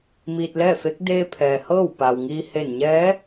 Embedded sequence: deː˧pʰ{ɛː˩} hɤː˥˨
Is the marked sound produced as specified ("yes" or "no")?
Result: yes